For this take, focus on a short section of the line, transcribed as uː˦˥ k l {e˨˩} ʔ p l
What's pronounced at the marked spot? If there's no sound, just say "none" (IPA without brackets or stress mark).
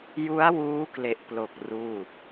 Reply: e˨˩